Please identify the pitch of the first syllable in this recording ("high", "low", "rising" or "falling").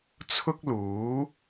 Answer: high